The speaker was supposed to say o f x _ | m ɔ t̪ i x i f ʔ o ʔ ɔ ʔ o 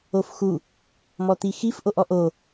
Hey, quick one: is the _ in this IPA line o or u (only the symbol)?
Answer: u